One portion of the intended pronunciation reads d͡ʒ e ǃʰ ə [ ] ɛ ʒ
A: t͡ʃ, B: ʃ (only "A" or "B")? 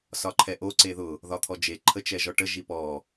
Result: A